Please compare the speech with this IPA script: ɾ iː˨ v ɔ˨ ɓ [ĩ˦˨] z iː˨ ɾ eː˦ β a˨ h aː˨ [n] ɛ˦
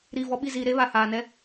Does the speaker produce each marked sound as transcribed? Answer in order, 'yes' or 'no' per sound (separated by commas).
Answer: no, yes